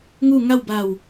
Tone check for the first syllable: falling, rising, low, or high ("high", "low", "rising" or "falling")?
falling